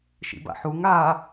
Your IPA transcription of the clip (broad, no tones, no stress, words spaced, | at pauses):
ʃḭba̰ħuŋ a